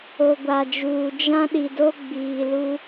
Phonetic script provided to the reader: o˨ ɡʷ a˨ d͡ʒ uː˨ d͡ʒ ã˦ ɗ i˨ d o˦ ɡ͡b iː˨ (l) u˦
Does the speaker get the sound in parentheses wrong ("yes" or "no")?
no